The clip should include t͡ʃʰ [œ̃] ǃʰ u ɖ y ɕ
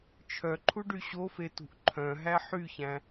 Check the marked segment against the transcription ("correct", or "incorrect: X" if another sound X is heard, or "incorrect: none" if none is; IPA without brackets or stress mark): incorrect: œ